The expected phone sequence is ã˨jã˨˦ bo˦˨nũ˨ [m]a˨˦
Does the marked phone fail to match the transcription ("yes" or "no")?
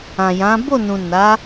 yes